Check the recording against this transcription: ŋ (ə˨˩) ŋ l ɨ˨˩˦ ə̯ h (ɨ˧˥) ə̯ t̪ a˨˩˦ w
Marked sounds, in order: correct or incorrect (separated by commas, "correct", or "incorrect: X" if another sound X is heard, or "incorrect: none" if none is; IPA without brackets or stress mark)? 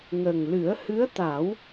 correct, correct